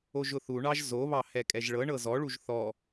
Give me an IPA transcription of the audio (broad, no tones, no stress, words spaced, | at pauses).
oʒʊθuɳɑʒ zoβɑ hɛkʼɛʒɭɤɳɤ zɔɭuʒ θɔ